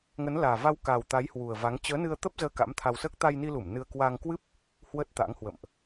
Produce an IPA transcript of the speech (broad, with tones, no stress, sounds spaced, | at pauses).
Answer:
ŋ ə˨˦ n l aː˨˩ v a˧ w k a˨˩ w t̪ a˨˦ j h w u˨˩ ə̯ v a˨˦ ŋ t͡ɕ əː˨˦ n ɨ˧ ə̯ t̪ ə˦˥ p̚ z əː˧ k a̰˧˥ m t̪ʰ a˧ w s əː˦˥ k̚ t̪ a˧ j n i˧ l u˧˩ m n ɨ˧ ə̯ k w a˧ ŋ k w ɨ˦˥ p̚ | h w ə˦˥ t̚ t̪ a̰˧˥ ŋ h w ə̰˧˨ m ʔ